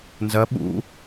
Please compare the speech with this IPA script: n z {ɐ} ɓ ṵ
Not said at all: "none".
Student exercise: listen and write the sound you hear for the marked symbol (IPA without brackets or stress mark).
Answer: ɐ